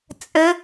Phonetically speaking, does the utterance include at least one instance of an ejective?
yes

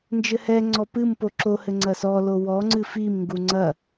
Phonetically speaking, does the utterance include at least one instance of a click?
yes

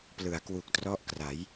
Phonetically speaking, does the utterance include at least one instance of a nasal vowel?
no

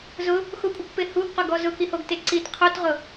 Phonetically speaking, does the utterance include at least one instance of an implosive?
no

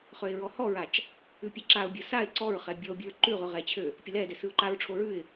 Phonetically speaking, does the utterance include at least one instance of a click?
yes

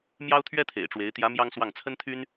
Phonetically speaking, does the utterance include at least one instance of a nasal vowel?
no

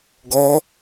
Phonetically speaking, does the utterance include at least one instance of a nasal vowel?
no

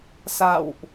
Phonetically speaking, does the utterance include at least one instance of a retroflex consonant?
no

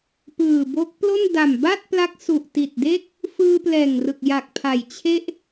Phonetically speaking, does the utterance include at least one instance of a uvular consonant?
no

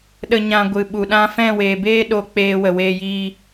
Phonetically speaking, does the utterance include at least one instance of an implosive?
yes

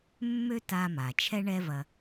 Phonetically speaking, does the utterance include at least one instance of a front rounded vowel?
yes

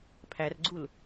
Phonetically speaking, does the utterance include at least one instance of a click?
yes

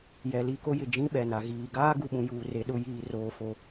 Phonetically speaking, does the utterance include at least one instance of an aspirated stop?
no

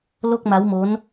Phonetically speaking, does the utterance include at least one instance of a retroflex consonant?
no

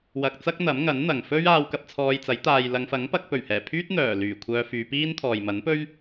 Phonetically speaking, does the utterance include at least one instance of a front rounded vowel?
yes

